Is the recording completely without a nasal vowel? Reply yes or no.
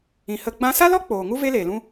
no